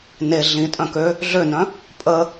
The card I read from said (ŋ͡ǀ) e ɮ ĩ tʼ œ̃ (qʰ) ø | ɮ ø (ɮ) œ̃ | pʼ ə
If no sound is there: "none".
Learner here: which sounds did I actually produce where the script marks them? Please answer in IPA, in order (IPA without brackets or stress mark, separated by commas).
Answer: n, k, n